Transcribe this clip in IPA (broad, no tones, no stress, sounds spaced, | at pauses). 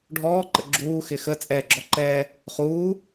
ɖʱ ɔː ǃ ə̰ ɡ͡ǁ uː x ɪ x ə t͡sʼ ɛː ɡ͡ǁ ɔ ǃ ɛː | χ uː